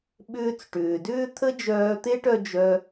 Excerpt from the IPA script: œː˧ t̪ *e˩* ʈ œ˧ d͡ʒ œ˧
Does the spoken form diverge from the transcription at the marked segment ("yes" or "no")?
yes